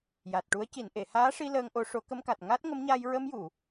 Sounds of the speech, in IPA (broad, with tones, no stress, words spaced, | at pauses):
ja˨˩t̚ʈu˧˥ə̯ ci˨˩˨nʔe˨˩˨ haː˧˥ʂi˧ ləː˧ŋʔo˧˥ ʂo˨˩˦kə˧mka˨˩t̚ ŋa˦˥t̚ŋə˧˥mɲa˧j ɹə˧mju˨˩˨